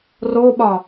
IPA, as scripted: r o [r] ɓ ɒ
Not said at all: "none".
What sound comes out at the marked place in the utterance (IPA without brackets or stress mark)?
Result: none